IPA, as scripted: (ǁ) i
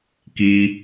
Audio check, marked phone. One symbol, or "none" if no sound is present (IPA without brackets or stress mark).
k